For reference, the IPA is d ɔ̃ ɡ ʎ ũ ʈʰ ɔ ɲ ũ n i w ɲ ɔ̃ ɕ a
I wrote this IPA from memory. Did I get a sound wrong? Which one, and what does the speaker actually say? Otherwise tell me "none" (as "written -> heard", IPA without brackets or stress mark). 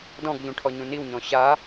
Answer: none